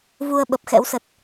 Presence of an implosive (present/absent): present